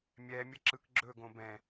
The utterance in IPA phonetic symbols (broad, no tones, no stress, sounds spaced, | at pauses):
mʲ ɛ mʲ ə ǁ ɯ k ɡ͡ǁ ɵ ɡ õ b ɛ̃